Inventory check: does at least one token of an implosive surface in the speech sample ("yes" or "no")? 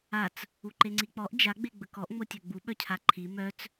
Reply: yes